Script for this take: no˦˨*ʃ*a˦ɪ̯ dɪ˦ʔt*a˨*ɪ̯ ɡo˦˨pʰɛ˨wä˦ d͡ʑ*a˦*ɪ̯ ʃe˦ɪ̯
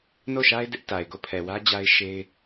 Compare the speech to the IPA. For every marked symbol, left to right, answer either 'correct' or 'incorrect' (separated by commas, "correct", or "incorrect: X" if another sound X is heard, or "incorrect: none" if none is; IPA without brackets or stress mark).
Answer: correct, correct, correct